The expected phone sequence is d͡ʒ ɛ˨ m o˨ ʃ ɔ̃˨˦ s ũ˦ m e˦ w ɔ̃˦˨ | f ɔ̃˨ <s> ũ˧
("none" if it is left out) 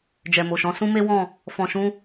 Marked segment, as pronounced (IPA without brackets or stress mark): ʃ